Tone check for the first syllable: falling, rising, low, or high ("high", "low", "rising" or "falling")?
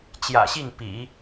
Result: low